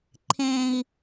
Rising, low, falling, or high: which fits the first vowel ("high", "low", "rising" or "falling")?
high